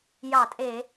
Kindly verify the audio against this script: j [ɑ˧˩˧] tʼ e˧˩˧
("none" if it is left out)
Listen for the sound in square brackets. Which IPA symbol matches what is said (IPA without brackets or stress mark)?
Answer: ɑ˧˩˧